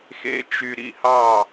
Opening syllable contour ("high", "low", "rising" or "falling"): falling